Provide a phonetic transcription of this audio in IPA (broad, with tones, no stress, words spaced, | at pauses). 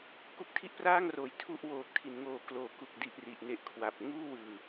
ku˦˥k̚tʰi˥˩ʔpraː˥˩ŋroː˩˦j tʰu˥˩ʔ woː˨˩k̚tʰi˩˦nŋoː˨˩ kloː˩˦ku˨˩k̚di˨˩ʔ ri˨˩ʔne˦˥ʔkʰwa˨˩p̚ ŋuː˥˩wɯː˨˩